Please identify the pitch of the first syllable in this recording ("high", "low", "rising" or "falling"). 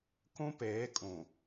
high